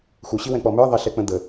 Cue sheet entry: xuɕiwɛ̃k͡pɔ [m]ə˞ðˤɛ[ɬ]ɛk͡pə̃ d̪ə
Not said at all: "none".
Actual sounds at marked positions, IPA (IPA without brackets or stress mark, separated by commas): m, ɬ